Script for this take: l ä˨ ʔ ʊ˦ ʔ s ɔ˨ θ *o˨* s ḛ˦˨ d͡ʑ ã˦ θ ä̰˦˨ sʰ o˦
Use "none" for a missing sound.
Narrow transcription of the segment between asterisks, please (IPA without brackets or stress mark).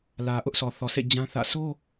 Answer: ɔ˨